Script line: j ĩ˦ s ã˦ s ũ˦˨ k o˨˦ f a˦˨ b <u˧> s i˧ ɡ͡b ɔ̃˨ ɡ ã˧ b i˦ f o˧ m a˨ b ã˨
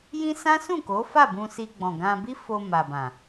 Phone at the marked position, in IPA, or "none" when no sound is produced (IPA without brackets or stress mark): ũ˧